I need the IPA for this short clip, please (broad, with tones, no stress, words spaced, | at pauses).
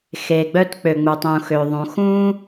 xe˩ɡ͡bœ˥t k͡pø˩ŋ͡mu˩tˤũː˩ xø˩ðˤũ˩ xũː˥